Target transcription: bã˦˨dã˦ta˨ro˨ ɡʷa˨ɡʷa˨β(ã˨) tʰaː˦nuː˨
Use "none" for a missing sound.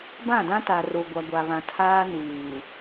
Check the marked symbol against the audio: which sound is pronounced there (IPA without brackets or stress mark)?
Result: ã˨